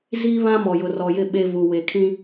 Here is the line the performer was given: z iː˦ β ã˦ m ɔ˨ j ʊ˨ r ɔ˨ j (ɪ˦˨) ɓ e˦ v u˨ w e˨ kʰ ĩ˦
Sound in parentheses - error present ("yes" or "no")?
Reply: no